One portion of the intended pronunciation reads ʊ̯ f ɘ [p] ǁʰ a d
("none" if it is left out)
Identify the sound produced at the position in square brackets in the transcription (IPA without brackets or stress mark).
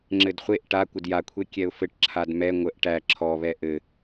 ʈ